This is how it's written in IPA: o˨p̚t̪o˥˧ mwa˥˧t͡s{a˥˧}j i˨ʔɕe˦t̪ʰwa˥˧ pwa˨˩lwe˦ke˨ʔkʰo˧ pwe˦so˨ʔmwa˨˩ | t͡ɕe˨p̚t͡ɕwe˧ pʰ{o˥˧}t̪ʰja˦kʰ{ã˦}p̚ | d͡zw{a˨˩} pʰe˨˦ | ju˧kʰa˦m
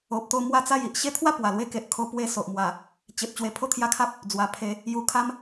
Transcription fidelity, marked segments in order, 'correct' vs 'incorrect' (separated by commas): correct, correct, incorrect, correct